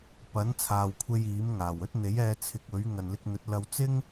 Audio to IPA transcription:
p ɐ˨˥ n t͡sʰ aː˨ w kʷʰ e˧ j iː˨˥ m ŋ aː˨˩ w ɵ˥ t̚ n̪ e˨˥ j ɛː˧ t͡sʰ ɪ˧ k̚ ɵ˨˥ ɥ ŋ ɐ˨ n l ɪ˧ k̚ n̪ ɵ˨˥ t̚ l ɐ˧ w t͡s ɪ˥ ŋ

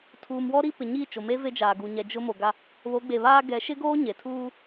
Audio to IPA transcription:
tʰ uː˨ m w ɔ˦ ɾ i˦ p ɪ˨ ɲ iː˦˨ t͡ʃ o˨ m e˦ v e˦ d͡ʒ aː˨ ɡ u˨ ɲ ɛ˨ d͡ʒ ʊ˦ m o˨ ɡ a˦ | β o˨˦ ɡ͡b e˨ β aː˦ ɡ ɛ˨˦ ʃ ɪ˦ ɡ oː˦ ɲ e˨ tʰ uː˦

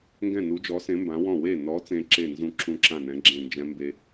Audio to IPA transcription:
ŋ ɡ ɛ̃˥˩ n u˨˥ d͡ʒ ɔ˨˥ s ẽ˨˥ m b ã˨˥ w ɔ̃˥˩ w e˥˩ n ɔ˨˥ t͡s ẽ˦˥ ǁ e˥˩ n z ũ˦˥ ǁ ũ˦˥ ǁ ã˥˩ n ɛ̃˨˥ ɡ͡ǁ ẽ˥˩ n d͡ʒ ɛ̃˦˥ m b e˦˥

